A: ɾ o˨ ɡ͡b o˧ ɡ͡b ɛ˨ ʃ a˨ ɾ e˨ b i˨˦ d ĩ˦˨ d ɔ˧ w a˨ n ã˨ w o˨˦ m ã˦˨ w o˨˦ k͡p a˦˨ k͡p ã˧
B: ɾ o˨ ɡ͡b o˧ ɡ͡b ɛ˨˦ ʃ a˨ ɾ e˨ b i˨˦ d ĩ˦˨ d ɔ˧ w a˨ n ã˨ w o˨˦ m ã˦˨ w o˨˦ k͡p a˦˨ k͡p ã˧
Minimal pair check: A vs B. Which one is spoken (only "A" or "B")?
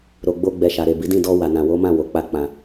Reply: A